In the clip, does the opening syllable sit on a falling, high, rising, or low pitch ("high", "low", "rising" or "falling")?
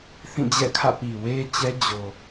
falling